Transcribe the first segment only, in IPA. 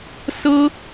s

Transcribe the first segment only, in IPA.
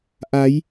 ʔ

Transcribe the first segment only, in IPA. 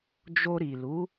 d͡ʒ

